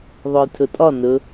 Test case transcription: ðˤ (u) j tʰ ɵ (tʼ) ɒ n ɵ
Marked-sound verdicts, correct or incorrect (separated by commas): incorrect, correct